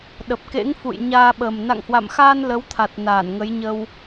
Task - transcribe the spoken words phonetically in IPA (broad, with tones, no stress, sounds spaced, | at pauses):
ɗ ə˨˩ p̚ k ḛ˧˥ ŋ f ṵ˧˨ j ɲ aː˧ ɓ ə˨˩ m n a̰˧˨ ŋ h w a̰˧˨ m x aː˧ n l ə˨˦ w t̪ʰ a˨˩ t̚ n aː˧˩ n ŋ ə˨˦ j ɲ ə˧ w